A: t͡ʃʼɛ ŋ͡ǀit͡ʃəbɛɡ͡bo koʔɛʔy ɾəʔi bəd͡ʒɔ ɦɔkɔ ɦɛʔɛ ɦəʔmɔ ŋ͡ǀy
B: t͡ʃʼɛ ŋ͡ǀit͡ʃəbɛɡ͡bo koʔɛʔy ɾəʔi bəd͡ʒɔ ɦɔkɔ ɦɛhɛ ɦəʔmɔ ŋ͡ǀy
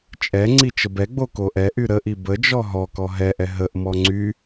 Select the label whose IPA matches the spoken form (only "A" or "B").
A